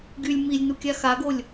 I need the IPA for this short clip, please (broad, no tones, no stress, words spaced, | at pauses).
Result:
ɡylʲ milʲnukʲa xaɡolʲ